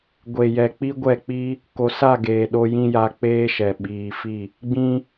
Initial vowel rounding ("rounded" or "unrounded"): unrounded